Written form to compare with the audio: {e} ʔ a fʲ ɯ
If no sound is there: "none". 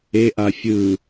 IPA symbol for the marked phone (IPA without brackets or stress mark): e